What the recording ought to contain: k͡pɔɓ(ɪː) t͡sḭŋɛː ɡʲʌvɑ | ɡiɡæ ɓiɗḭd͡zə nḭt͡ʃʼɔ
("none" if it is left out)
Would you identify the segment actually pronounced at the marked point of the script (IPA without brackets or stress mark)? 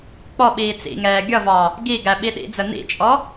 iː